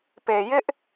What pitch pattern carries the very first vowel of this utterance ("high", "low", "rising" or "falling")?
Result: low